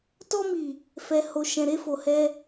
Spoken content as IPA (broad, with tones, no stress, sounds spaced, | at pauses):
t ɔ˧ m i˨ | f ɛ˨ h o˨ ʃ ɛ̃˨ ɾ e˧ f o˨ h ɛ˧